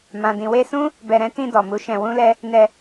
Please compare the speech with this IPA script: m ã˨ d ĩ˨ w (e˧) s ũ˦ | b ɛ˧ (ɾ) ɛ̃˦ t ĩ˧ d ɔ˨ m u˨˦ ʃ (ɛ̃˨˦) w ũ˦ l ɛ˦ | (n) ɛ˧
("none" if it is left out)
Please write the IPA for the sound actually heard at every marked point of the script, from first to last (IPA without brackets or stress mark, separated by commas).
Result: e˧, ɾ, ɛ̃˧, n